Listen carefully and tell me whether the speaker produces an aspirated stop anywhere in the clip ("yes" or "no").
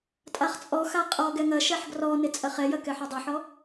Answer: no